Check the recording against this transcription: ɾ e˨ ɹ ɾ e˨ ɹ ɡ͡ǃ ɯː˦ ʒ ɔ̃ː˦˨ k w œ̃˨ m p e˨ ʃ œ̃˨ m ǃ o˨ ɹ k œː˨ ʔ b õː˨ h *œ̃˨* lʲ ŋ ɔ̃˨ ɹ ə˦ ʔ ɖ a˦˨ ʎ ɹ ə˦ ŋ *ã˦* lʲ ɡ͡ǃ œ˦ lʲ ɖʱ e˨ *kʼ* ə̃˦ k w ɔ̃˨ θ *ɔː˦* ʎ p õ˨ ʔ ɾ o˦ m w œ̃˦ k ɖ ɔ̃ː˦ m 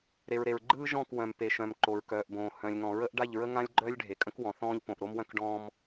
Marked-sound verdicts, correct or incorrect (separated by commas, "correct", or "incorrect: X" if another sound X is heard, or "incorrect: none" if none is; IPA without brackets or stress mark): correct, correct, correct, incorrect: ɔ̃ː˦